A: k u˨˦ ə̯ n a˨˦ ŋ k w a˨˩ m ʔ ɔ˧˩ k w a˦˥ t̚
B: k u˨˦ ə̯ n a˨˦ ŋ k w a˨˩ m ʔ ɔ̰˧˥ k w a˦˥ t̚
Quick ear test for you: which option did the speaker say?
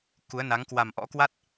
B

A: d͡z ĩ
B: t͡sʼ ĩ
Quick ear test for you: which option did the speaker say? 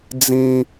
A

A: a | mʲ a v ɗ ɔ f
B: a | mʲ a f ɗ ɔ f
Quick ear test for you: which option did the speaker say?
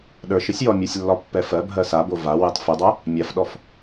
B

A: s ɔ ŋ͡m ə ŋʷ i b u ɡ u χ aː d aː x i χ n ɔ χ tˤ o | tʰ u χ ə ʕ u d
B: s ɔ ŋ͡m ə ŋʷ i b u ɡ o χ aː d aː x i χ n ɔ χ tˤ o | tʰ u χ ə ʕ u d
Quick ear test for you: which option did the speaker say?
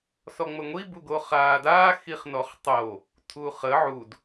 B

